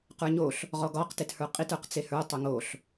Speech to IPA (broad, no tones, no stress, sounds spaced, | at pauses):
q ə˞ ɲ o ɬ | ʁ ɔ ɡ ɒ q t e t h ə˞ qʼ i t ə˞ q t͡s e h ə˞ tˤ ə˞ ŋ o ɬ